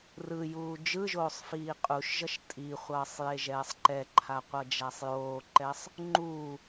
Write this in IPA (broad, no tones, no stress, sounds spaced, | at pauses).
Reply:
r ɯ j uː d͡ʒ ɯ ʒ oː sˤ f iː qʼ u ʃ ʒ ʌ ʃ tʼ i χʷ ʌː sˤ j e ʒ ɛː sˤ ǃ ɛ ǃʰ a qʷ ʌ d͡ʒ a sˤ j oː ǃ ɛ sˤ | ŋ͡ǃ u